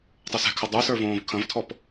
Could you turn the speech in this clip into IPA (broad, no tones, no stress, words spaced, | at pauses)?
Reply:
tˤəːsɛ̤kʰɐ dˤə˞sə˞ võːvkʰɐ̃vtʰɔp